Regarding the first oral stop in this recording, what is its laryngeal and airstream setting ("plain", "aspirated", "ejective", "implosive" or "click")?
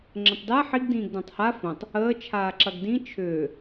click